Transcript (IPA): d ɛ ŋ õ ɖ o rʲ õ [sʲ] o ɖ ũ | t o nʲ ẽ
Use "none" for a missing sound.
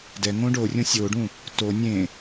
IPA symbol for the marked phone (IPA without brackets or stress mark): sʲ